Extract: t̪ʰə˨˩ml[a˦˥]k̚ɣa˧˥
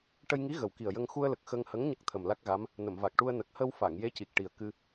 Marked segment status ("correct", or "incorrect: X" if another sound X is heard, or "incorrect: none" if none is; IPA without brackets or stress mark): correct